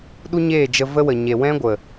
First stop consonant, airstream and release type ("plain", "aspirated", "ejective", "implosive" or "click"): implosive